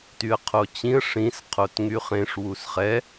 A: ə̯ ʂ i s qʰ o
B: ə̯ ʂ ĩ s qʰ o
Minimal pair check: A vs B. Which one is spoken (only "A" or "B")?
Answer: B